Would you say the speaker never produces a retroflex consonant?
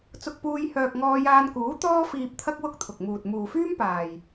yes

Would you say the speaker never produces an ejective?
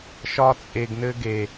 no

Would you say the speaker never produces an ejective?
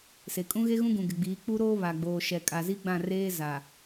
no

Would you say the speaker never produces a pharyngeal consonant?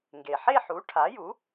no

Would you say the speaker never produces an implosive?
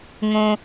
yes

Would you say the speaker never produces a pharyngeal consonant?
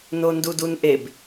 yes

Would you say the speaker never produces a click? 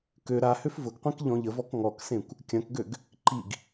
no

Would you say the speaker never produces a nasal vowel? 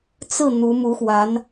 yes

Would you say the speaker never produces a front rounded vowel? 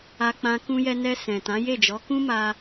yes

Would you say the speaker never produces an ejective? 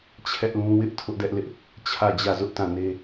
yes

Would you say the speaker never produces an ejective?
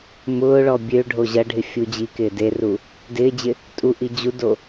no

